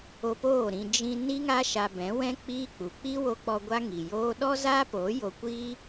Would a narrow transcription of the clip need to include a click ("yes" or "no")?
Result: no